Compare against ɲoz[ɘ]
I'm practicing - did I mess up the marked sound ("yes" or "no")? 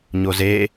yes